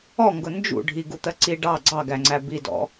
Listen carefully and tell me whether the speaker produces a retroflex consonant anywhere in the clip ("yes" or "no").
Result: yes